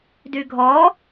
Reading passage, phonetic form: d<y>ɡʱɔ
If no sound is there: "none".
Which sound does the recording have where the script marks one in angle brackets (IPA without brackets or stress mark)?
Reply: y